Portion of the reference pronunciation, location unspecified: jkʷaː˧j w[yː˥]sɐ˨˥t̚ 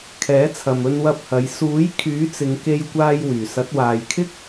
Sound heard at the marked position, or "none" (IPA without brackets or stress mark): yː˨˩